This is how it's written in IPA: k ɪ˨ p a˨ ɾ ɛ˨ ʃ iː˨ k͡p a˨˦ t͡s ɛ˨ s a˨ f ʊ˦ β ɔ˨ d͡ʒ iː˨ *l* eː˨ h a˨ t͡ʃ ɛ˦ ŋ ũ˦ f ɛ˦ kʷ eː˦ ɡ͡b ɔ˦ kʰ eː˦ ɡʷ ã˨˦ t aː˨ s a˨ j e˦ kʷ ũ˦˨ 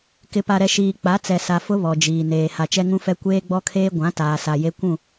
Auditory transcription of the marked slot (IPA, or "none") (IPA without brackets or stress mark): n